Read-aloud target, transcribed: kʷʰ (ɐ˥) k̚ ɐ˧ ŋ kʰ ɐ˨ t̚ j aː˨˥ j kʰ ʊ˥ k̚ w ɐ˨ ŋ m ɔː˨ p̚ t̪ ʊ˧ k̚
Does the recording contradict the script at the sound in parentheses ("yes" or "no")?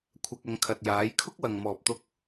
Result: yes